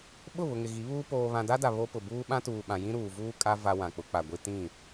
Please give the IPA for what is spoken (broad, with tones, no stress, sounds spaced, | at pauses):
ɓ ʊ˦˨ β ʊ˨ ŋ ɪ˨ ɣ i˨˦ β uː˦ p oː˨ β ã˨ d a˦ d a˨ β o˦ p ʊ˨ b uː˦ ɓ ã˦ t uː˨ ɓ ã˨ j ĩ˦ ɾ uː˨ v uː˦ kʼ a˦ v a˦ w ã˨ k͡p ʊ˨˦ k͡p a˨ ɡʷ i˦ t ĩ˦˨